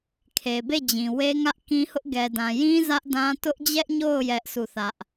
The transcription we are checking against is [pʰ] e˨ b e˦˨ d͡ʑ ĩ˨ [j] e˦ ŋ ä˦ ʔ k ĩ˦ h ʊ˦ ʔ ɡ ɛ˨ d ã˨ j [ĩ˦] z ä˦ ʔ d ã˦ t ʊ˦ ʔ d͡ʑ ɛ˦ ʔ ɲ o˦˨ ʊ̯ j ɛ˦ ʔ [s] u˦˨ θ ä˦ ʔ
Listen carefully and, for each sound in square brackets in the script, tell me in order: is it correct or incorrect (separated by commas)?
incorrect, incorrect, correct, correct